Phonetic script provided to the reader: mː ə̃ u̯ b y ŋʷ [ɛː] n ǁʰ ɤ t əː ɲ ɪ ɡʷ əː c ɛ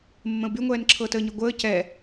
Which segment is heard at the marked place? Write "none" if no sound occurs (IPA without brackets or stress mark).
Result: ɛː